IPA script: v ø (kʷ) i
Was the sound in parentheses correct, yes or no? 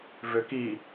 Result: no